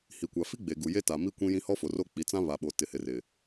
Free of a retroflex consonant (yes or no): yes